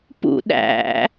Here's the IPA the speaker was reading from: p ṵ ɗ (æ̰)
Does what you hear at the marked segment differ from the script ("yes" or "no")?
no